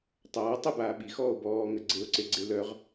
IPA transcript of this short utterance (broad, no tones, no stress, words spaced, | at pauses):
tˤaː tˤəbaː ɓixɔːo̯ bɔːŋə ɡ͡ǀeo̯ǀeɡ͡ǀe lœʁ